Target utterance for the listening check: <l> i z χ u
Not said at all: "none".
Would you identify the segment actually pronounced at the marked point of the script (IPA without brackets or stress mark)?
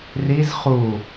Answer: r